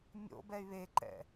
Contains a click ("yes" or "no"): yes